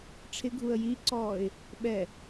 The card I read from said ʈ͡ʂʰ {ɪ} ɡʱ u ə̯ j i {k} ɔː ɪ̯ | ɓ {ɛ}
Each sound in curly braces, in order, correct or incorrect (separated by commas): correct, incorrect, correct